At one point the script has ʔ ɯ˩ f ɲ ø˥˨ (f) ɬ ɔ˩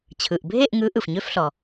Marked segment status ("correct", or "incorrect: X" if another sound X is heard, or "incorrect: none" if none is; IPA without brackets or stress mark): correct